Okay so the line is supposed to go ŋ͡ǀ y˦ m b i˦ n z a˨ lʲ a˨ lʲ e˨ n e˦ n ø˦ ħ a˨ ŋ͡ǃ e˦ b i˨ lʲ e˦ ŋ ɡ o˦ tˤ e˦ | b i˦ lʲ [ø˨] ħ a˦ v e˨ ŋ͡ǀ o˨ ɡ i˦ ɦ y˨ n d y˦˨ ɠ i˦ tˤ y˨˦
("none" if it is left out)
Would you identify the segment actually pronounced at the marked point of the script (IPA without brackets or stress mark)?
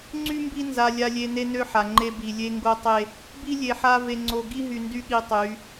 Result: e˨